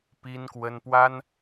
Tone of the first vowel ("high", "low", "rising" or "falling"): high